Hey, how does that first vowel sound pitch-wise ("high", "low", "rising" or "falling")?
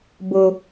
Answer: high